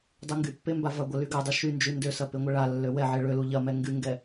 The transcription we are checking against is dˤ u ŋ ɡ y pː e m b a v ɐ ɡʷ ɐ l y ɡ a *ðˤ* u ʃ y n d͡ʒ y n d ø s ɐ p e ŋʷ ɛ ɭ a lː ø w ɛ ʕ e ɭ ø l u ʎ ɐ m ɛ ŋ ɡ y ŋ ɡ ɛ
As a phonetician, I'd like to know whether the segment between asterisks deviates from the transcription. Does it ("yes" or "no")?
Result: yes